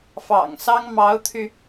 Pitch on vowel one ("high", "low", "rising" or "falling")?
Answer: low